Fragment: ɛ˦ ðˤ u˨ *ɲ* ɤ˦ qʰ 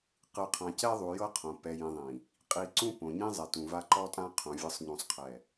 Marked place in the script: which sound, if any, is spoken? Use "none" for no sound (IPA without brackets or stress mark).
j